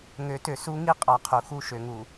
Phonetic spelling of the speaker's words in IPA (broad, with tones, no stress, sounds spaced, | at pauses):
ŋ ø˨˦ t ø˨ s u˦ ŋ i˦ qʼ ɑ˨ qʰ u˨ x u˦˨ ʃ ø˨ ŋ u˨